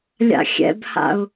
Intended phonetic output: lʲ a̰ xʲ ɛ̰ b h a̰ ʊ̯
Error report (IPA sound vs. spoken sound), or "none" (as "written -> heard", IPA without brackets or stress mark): none